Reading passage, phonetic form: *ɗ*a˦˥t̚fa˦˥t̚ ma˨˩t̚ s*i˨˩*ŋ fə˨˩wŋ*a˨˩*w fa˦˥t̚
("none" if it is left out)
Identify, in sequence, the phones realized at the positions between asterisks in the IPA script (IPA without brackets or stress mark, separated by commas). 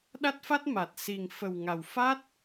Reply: ɗ, i˨˩, a˨˩